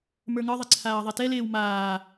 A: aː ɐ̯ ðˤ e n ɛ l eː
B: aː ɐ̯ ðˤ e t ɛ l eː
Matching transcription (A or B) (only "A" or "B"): B